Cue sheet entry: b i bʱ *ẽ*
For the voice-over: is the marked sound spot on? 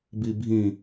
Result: no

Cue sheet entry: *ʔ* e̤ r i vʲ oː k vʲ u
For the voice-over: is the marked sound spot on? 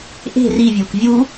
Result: yes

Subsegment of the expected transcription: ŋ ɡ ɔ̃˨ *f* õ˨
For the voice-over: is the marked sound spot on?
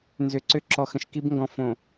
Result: yes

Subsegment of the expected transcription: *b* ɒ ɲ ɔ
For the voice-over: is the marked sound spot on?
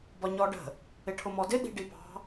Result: yes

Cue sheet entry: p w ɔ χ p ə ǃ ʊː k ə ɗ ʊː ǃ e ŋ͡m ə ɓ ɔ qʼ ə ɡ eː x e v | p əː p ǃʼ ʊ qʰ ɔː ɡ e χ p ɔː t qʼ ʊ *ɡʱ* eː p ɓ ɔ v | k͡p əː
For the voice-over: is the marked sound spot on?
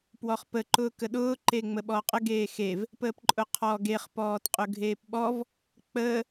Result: yes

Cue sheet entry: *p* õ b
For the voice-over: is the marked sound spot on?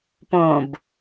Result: yes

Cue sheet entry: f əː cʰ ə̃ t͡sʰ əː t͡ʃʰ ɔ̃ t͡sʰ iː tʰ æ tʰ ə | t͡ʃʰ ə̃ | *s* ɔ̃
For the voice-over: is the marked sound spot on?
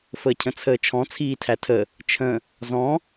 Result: no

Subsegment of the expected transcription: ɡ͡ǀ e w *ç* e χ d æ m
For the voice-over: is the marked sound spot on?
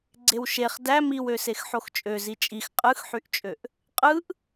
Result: no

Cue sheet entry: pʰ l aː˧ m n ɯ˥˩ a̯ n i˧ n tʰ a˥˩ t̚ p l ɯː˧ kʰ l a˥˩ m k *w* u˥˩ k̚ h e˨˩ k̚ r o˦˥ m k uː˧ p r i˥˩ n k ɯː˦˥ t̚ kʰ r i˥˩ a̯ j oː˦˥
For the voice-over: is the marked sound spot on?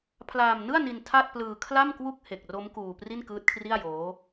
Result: yes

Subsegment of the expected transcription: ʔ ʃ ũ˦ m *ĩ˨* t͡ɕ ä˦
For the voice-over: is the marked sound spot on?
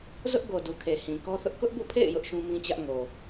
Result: no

